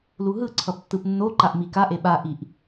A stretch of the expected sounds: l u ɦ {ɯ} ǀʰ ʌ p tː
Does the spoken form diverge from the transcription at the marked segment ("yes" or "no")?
no